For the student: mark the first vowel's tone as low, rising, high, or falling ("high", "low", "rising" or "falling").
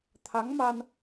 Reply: rising